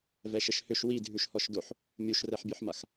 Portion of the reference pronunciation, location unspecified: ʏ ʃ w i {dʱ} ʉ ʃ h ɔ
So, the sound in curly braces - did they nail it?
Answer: yes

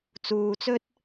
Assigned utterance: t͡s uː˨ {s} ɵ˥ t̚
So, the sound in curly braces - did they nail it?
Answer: no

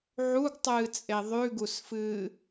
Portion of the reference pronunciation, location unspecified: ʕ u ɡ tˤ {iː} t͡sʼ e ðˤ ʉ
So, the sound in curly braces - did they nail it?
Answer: no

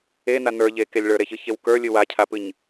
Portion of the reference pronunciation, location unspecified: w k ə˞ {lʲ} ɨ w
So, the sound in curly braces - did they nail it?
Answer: yes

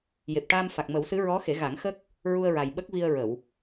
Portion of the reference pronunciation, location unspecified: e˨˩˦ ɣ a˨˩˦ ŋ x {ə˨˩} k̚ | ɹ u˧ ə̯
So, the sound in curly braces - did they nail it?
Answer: no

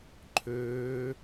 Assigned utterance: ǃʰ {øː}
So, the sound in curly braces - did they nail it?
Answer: yes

